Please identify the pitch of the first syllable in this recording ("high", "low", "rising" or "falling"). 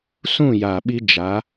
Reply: falling